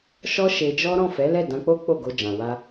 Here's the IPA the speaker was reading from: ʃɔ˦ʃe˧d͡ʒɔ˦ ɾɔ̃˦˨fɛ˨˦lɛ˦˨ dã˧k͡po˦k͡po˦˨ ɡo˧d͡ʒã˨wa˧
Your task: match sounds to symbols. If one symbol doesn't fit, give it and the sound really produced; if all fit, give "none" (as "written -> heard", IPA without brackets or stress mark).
none